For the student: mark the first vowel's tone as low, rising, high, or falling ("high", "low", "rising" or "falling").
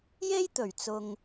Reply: high